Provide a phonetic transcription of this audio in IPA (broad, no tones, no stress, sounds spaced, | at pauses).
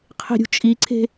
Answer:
qʰ e̤ ɾʲ ṳ t͡ʃʼ i ǀʰ e̤